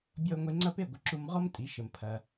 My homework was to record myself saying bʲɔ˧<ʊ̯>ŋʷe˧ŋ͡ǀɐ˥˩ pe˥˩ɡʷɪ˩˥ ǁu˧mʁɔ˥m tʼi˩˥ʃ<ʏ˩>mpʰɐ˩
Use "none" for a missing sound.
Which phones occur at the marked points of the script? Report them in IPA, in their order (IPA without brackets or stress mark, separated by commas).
ʊ̯, ə˩